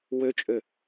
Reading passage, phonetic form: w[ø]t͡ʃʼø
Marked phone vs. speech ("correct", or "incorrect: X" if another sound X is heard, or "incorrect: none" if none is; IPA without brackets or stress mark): correct